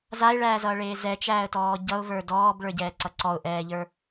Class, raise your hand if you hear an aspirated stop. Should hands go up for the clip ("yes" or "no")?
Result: no